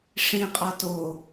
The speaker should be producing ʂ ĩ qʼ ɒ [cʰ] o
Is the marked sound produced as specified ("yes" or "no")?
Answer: no